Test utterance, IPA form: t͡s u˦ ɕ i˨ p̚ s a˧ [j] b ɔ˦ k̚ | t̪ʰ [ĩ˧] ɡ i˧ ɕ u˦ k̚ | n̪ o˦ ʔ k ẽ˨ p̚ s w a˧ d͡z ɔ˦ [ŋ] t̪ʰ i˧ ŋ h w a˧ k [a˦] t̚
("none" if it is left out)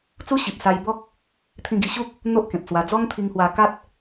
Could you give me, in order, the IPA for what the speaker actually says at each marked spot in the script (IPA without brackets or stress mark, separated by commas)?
j, ĩ˧, ŋ, a˦